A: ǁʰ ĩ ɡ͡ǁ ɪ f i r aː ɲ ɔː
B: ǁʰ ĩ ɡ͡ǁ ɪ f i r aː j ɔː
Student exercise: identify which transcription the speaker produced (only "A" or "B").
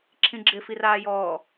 B